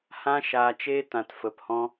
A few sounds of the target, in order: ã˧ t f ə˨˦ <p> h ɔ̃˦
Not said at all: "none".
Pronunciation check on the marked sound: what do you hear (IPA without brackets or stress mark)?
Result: p